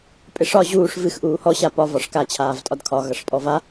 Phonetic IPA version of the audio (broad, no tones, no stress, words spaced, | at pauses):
pʼɪʂɒ ʑuːʂ vɨx ʔuːhɔ ɕapɒ vɒʂka t͡ɕʰaːvtʼɒdkʰɒ ɣʌʂpʼɔva